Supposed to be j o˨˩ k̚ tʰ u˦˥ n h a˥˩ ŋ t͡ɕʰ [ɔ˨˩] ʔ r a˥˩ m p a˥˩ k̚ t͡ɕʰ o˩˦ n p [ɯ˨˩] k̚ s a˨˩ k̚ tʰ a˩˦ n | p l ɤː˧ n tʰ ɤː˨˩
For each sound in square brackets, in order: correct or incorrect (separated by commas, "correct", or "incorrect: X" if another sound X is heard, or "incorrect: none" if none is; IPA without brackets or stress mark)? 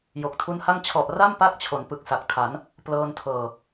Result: correct, correct